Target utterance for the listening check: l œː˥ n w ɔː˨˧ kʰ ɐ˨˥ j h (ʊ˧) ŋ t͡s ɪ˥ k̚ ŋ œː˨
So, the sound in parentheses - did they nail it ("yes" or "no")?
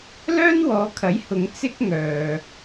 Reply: no